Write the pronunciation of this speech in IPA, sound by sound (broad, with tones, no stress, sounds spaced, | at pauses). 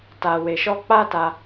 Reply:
t a˧ w e˧ ʃ ɔ˦ k͡p a˦ t a˧